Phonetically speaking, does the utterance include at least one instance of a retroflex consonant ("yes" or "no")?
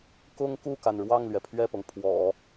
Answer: yes